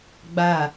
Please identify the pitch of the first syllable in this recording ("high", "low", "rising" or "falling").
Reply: falling